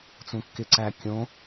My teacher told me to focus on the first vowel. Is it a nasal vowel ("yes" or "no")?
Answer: yes